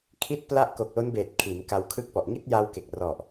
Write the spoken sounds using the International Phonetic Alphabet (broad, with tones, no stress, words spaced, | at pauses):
kʰi˥˩t̚pla˥˩ʔ ko˨˩k̚lo˦˥nbeː˨˩t̚ kʰi˩˦nka˧wkʰɯ˥˩k̚pɔ˨˩ʔ ŋi˥˩t̚ja˧w ke˨˩k̚rɔ˨˩ʔ